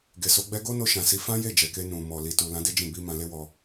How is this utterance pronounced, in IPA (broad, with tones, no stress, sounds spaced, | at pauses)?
ɡ e˨ s o˨˦ ɡ͡b ɛ˦ ɡ o˦ n o˧ ʃ ã˨ s i˨˦ f ã˦ j e˦˨ d͡ʒ ɛ˨ k e˧ n ũ˨ m ɔ˨ l i˨ t u˨ l ã˨˦ d e˦ d͡ʒ ĩ˦˨ b i˧ m ã˧ l e˦ w ɔ˧